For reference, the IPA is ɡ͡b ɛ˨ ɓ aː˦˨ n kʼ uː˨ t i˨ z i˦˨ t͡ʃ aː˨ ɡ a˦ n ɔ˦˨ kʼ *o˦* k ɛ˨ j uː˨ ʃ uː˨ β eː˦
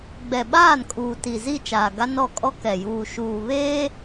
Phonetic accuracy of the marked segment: incorrect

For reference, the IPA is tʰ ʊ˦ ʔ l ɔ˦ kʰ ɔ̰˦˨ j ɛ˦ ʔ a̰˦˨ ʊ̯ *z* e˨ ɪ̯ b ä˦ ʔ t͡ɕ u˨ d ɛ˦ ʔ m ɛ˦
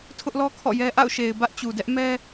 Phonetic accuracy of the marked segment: incorrect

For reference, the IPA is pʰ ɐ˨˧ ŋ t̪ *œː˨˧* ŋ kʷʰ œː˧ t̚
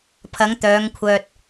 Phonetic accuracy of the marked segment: correct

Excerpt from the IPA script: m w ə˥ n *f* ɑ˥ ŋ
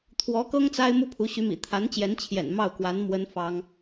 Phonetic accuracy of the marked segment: correct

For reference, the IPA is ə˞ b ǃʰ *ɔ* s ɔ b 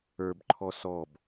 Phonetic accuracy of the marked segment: correct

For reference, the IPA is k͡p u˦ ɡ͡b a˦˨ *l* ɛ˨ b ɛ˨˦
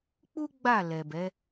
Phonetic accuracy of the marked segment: correct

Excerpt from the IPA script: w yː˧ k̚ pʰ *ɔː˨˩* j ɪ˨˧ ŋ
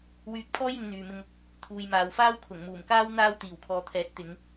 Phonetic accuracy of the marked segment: incorrect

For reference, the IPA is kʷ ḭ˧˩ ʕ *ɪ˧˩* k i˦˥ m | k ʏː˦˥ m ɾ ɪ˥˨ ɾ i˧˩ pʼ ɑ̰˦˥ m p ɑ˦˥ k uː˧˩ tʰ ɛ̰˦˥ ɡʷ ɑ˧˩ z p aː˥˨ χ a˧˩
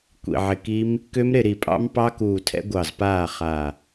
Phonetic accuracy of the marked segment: correct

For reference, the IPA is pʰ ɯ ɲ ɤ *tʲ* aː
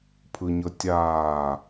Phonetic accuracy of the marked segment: correct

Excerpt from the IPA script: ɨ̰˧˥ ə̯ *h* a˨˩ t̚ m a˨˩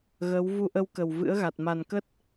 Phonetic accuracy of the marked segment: incorrect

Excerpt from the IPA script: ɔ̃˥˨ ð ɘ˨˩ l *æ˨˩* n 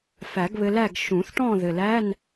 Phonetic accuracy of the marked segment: incorrect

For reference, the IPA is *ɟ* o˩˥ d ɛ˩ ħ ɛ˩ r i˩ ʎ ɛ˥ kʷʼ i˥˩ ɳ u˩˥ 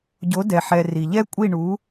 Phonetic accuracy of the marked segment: correct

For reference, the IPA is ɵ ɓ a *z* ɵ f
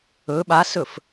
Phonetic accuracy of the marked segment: incorrect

